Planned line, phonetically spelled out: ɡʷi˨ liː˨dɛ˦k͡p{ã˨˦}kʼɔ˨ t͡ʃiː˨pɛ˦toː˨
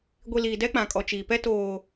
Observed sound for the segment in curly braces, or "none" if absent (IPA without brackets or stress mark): ã˨